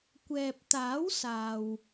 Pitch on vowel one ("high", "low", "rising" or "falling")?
low